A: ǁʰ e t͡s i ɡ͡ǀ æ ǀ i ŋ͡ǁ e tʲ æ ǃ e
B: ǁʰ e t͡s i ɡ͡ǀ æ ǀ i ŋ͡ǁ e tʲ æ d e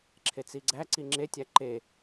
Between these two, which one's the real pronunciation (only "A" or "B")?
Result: A